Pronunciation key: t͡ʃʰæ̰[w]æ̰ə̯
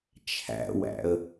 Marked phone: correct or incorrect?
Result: correct